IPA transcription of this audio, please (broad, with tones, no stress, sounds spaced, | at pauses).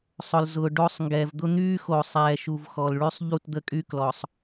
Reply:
sˤ ʊ˨ l z ʊː˨ ɖ o˦ sˤ ŋ ɡ ɛː˨ v d̪ ʊ˦ n̪ yː˦ x o˨ sˤ ɛː˨ ʃ u˨ v x ɔ˨ l ɭ y˦ sˤ ʎ u˦˨ t d̪ ə˦ kʼ y˦ k l ɔ˨ sˤ